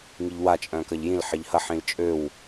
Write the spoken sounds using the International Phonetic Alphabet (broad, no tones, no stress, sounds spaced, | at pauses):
ŋ i ʎ w a t͡ʃʼ œ̃ k ɐ ʎ j ĩ l ħ ɪ ʎ h ɐ ħ ĩ l t͡ʃʼ ø w